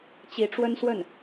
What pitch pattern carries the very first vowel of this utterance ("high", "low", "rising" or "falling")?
rising